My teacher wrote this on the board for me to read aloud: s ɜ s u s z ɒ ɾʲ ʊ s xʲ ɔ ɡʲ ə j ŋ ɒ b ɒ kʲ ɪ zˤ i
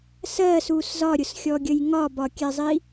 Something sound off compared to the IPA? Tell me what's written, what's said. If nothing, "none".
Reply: ɪ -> ɛ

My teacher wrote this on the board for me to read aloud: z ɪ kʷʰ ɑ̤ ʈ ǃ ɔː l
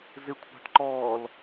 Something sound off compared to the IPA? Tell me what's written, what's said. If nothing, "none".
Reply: none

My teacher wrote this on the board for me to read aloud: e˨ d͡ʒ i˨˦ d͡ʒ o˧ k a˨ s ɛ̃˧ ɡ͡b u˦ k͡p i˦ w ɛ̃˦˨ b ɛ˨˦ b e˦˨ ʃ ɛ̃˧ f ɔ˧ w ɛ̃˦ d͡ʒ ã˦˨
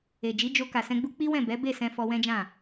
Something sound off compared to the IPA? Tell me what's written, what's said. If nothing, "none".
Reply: ʃ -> s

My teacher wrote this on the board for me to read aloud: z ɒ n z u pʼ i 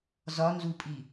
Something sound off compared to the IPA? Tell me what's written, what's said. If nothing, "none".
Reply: none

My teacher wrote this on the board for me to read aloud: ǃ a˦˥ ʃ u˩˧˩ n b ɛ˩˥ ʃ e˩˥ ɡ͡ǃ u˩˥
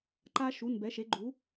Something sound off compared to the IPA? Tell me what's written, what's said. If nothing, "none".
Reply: none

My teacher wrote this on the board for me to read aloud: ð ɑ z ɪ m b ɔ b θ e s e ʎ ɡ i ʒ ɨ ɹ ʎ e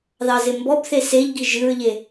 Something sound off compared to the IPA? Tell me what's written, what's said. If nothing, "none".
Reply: none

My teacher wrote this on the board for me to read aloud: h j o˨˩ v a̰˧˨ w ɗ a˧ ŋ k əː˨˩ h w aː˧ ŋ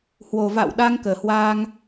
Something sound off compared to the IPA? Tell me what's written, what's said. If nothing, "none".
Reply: j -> w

